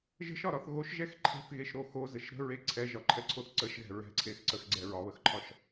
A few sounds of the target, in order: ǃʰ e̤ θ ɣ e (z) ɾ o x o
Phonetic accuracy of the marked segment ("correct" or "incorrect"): incorrect